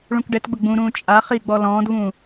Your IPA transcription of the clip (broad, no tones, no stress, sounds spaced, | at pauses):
ɭ ũ k ɖ ɛ t ɡ͡b ʊ ɡ͡b ũ ɾ ũː t͡ʃʼ a χ i ɡ͡b ɔ l ɔ̃ː d v ũː